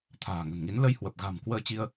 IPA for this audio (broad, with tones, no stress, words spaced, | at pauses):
t̪ʰa̤ː˨˩ŋə̤˨˩nŋi˨˦n lə˧jhwə˨˩p̚ɣa̤˨˩m kwəː˧t͡ɕi˧ə̯